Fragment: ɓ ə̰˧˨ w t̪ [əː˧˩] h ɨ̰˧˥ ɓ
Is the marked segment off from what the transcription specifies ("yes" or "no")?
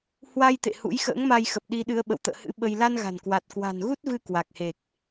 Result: yes